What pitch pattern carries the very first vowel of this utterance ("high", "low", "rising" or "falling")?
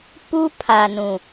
high